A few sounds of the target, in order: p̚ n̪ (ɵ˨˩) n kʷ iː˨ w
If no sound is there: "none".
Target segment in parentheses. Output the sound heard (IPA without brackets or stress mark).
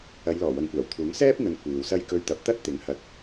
ɵ˨